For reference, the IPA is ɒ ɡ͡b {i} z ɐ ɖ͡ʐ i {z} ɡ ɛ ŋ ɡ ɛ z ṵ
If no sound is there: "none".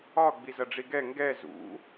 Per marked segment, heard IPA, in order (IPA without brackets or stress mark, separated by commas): i, none